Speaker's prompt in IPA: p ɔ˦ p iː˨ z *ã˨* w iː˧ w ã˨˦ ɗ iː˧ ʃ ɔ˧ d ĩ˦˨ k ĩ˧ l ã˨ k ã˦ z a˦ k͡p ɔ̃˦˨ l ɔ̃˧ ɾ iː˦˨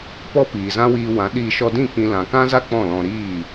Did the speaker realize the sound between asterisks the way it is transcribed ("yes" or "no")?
no